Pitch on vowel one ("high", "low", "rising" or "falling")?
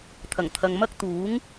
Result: low